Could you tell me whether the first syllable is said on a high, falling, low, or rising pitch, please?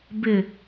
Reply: low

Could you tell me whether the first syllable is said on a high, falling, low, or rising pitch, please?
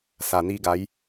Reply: low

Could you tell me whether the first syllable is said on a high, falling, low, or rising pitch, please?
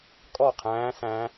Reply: falling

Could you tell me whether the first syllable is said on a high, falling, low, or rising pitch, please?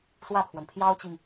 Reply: falling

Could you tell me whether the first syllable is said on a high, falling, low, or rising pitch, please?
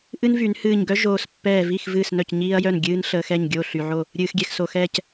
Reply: high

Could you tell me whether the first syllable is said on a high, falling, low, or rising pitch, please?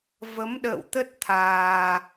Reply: rising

